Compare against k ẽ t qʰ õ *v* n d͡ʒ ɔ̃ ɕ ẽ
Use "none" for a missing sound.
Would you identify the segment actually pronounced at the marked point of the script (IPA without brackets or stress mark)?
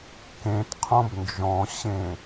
b